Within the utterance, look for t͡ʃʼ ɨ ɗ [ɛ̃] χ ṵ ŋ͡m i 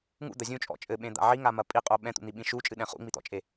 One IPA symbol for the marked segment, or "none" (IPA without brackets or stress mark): ɛ̃